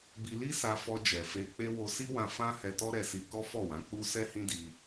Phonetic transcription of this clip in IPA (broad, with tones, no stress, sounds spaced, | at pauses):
b i˧ l i˦ s a˧ f ɔ˧ d͡ʒ ɛ˨ f e˧ k͡p e˦ w o˧ s i˦ w ã˧ f ã˦ h ɛ˧ t ɔ˦ ɾ ɛ˧ s i˧ k ɔ˦ f ɔ˦˨ w ã˨˦ k͡p u˦ s ɛ˦ h ĩ˦ d i˧